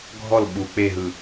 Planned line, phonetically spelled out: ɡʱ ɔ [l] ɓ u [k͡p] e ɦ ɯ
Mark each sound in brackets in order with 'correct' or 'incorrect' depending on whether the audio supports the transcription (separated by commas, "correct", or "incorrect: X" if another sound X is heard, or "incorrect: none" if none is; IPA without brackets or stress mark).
correct, correct